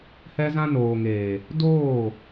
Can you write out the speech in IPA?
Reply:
h ɛ˧ z ã˧ n oː˨ ŋ eː˨ | d oː˦˨

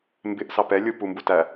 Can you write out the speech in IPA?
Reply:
m b ɪ ʔ s ɑ p ɛ lʲ u p u m b u t æ

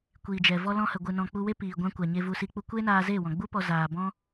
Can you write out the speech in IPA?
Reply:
kʷ iː˨ d͡ʒ ɛ˨ v ɔ˧ l ɔ̃˧ h ə˨ ɡʷ ɨ˨ n ɔ̃˨ k͡p u˧ w e˦ p iː˨ ɡʷ ã˧ kʷ a˨ ɲ e˧ v u˧ s i˧ k͡p u˧ kʷ e˦ n aː˧ z e˦˨ w ɔ̃˨ ɡ͡b u˦ p ɔ˧ z aː˨ b ɔ̃˦

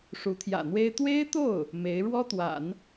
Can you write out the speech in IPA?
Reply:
ʂ u˧˥ t̪ʰ j ä̰˨˩ n̪ w e˥ ɪ̯ t̪ w e˥ ɪ̯ t̪ o˥˩ ʊ̯ | m e˧˥ ɪ̯ ɻ w ɔ˥ t̪ w a̰˨˩˦ n

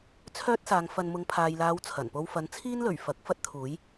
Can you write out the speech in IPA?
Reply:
t͡sʰ œː˥ t̚ s aː˨˧ ŋ f ɐ˧ n m ʊ˨˧ ŋ pʰ aː˨ j l aː˨˧ w t͡sʰ ɐ˨˩ n p o˧ w f ɐ˨˥ n t͡sʰ iː˥ n l ɵ˨˩ ɥ f ɐ˨˥ k̚ f ɐ˥ t̚ t̪ʰ uː˨˥ j

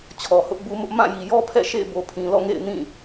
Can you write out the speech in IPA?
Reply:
t͡ɕʰ ɔ˨ h ʊ˦ ʔ b u˦ m ʊ˦ ʔ m ã˦˨ j i˨ j ɔ˦ pʰ ɛ̰˦˨ ʃ ḛ˦˨ ɪ̯ b o˨ pʰ ĩ˨ l ɔ̰˦˨ ŋ ḛ˦˨ ɪ̯ n ĩ˦˨

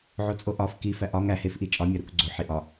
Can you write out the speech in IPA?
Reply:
ʕ o t͡sʼ o ʔ ɒ f k i f æ ʔ ɒ ŋ æ h e f ʔ i t͡ʃʼ ɒ mʲ ɒ ɾ u k ɡ͡ǀ o ħ i ʔ ɒ

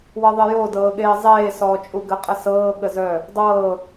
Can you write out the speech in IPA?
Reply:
w ɤ ðˤ ɪ j o d ɤː ɠ eː zˤ eː s ɔː t͡ʃʼ u ɡ ə qʼ ə s ɤː ɠ ə z œ | dˤ ɤː

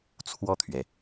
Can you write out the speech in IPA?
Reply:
t͡sʰ w ɔ˥˩ t̪ʰ ɥ ɛ˩

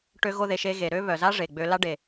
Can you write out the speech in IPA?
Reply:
ʈ ø˦ ɣ o˦ ð e˧ ʃ e˧ ɣ e˨ ɾ ø˦ β œ˨ z a˦ ʐ e˨ ɡ͡b ø˧ l a˧ ɖ e˨

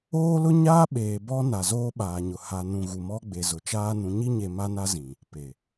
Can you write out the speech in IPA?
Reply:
oː˦ l ʊ˦ ɲ aː˦ ɓ eː˨ b ɔ˦ n a˨ z oː˦ ɓ aː˨ ɲ ʊ˨ h a˨ n ũ˨ ɣ u˨ m ɔ˦ ɡ͡b e˨ z ʊ˨ t͡ʃ aː˦ n ũ˨ ɲ i˦ ɲ e˨ m a˦ n a˦ z ĩ˨ | p e˨

